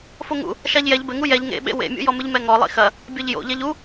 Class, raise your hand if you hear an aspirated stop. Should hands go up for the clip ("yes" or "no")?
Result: no